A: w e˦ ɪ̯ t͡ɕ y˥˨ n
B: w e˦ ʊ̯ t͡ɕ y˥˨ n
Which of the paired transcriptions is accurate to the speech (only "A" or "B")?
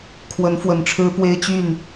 A